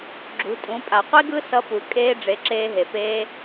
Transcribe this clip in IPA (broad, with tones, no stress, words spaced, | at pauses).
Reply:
ɡ͡ǁṳ˩˧ tʼũ˩˧pʼa˩ qʷi˥ɡɯ˥sʌ˧ pu˩ kʼeː˧ɖ͡ʐe˩˧ ǁeː˧ɦe˩ peː˧